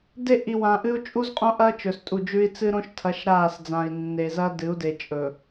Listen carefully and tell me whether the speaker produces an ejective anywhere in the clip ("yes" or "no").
yes